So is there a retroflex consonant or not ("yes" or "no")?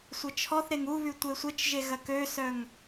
no